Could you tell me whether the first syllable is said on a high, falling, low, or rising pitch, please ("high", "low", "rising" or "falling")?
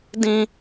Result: high